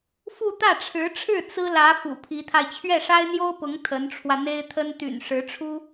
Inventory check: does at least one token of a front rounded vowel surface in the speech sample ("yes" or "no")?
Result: yes